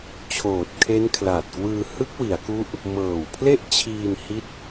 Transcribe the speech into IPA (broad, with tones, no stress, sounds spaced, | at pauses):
t͡ɕʰ oː˨˩ t̚ kʰ e˦˥ n kʰ l a˨˩ t̚ k w ɯː˧ h ɯ˦˥ k̚ w i˩˦ a̯ k u˦˥ ʔ | m ɤː˨˩ w pʰ l e˥˩ ʔ t͡ɕʰ iː˧ n h i˦˥ t̚